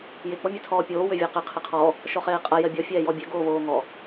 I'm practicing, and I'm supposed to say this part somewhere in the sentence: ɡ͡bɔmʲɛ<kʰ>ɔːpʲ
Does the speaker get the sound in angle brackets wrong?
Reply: yes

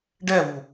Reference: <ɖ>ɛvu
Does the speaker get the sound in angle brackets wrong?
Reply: no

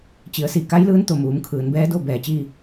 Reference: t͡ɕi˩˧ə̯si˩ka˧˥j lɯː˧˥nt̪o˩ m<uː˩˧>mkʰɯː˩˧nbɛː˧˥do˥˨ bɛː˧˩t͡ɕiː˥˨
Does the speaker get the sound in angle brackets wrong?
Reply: no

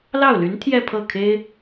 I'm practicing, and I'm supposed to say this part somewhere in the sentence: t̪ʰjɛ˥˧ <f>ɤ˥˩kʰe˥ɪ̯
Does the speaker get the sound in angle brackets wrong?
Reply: yes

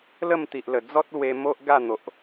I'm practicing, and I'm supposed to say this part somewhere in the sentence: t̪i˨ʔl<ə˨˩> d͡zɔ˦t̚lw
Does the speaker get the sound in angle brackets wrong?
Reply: no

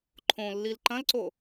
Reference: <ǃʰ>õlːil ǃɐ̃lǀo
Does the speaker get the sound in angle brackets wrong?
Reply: no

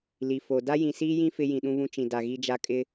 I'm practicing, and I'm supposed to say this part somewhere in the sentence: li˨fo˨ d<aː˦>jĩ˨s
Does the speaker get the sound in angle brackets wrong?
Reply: yes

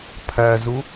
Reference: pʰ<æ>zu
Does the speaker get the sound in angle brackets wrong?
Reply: no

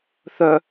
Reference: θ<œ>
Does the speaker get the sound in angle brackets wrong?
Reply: no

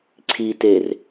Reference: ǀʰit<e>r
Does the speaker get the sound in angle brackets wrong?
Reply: no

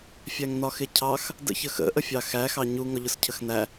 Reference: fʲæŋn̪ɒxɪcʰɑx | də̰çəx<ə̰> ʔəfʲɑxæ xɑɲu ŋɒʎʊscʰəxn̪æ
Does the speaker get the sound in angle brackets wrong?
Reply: no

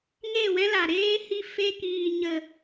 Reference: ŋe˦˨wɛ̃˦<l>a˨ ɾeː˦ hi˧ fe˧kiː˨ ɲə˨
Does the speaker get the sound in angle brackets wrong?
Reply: no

